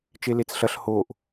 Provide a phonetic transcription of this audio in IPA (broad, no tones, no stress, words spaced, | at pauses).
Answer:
t͡ʃelet͡sɬɐɬ hoʔ